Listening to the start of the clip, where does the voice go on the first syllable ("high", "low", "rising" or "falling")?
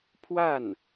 falling